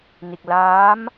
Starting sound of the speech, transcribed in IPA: n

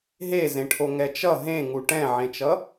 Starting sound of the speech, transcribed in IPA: ɦ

